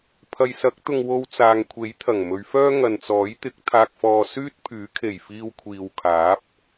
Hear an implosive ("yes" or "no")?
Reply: no